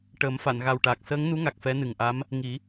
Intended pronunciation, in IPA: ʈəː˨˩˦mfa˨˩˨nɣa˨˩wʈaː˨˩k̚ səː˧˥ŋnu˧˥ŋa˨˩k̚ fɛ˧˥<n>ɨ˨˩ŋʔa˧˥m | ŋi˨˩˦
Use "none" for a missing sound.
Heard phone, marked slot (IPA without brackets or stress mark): n